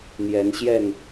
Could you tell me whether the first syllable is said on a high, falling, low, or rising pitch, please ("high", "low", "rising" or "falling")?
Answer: rising